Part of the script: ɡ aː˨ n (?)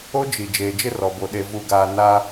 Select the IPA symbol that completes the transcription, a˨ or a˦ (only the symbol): a˦